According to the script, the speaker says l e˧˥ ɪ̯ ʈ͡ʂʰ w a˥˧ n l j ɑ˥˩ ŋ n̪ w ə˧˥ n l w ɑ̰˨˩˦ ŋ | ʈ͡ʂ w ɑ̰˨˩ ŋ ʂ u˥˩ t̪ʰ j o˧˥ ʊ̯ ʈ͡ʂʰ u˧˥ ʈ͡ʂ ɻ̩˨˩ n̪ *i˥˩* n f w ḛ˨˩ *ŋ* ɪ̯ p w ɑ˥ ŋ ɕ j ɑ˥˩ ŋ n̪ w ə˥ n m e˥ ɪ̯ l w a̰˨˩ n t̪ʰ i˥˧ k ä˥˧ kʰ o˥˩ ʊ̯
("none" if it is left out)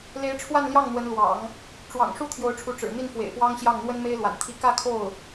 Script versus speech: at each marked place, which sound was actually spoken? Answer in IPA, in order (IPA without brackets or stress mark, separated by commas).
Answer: i˥˩, none